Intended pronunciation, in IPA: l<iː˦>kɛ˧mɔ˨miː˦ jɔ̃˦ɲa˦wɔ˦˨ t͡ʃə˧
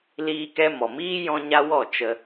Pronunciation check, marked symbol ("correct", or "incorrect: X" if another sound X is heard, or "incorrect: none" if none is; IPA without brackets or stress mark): incorrect: iː˧